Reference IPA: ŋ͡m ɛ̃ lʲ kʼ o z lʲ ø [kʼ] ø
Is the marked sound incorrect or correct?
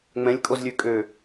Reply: correct